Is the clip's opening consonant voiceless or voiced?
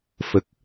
voiceless